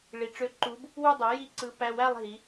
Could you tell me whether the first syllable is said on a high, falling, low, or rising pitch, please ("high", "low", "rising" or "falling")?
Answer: rising